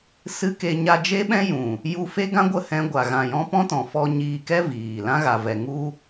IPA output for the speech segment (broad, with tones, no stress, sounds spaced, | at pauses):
s ɨ˦ k e˧ ɲ a˧ d͡ʒ e˦ ɓ ɛ̃˦ j ũ˨ | j u˧ f e˦ ɡ ã˦ ɡʷ ə˦˨ h ɛ̃˧ ɡʷ a˨ ɣ ã˨ j ɔ̃˧ p ɔ̃˦ t ɔ̃˨ f ɔ˧ ɲ iː˧ k ɛ˦ v iː˨ l ã˦ ɣ a˨ v ɛ˨ ŋ u˦